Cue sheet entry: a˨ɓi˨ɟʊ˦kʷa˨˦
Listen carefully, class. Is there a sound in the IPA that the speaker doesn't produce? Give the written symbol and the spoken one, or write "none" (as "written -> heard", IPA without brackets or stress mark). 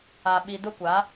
ɟ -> d